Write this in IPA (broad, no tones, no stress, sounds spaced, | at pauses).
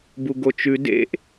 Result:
b u ɡ o t͡ʃ ʉ d ḛ ʔ